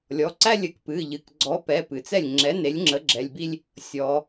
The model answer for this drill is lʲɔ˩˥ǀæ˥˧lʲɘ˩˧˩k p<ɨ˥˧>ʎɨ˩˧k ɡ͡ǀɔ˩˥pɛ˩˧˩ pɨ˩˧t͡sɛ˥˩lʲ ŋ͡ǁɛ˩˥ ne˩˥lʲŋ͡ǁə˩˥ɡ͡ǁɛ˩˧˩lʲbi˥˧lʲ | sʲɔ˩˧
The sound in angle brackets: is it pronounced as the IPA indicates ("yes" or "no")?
no